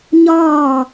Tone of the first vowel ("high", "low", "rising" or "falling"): falling